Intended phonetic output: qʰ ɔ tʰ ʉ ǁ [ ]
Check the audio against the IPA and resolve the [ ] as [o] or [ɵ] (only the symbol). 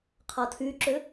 ɵ